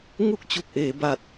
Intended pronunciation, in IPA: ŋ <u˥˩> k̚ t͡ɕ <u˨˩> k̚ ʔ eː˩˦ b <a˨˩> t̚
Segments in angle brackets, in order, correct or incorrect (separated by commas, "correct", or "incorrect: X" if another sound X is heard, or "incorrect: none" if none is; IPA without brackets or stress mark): correct, correct, correct